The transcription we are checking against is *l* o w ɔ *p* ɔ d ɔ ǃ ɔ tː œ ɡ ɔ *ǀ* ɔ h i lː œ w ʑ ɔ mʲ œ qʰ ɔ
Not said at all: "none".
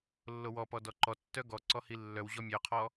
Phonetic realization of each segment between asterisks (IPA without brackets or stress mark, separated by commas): lː, p, ǀ